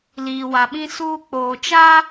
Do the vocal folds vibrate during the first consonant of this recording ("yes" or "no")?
yes